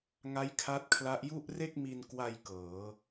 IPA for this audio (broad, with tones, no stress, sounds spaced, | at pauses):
ŋ a˦˥ j kʰ a˦˥ t̚ kʰ l a˦˥ ʔ j u˥˩ ʔ r e˥˩ k̚ m i˧ n k w a˧ j k ɤː˩˦